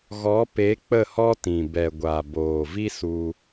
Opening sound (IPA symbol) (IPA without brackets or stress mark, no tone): ɣ